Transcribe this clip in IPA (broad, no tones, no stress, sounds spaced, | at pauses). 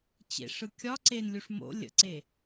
t͡ɕ ḛ ʂ ɯ kʲ ɒ ǀ e n lʲ u ʂ m o̰ lʲ ə̰ ǀ e